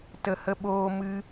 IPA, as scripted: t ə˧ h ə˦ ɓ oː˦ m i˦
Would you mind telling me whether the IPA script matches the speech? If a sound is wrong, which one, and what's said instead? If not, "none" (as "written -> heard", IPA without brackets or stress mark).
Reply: i˦ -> ɨ˦